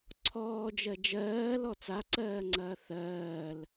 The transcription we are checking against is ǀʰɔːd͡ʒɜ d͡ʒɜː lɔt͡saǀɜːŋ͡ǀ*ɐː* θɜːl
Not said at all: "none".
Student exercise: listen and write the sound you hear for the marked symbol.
ɐː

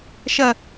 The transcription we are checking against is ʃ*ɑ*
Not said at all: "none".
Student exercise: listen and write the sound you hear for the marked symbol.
ɐ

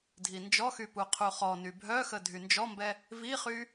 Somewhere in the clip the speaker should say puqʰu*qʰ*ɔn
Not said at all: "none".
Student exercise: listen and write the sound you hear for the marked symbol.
χ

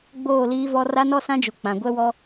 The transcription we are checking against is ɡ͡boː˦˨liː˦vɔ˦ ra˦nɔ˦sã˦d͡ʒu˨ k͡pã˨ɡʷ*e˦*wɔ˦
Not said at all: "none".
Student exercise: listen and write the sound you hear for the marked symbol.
ɛ˦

